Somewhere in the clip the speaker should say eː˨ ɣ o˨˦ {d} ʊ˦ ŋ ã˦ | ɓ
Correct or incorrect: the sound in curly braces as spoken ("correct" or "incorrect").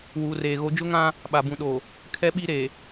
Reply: incorrect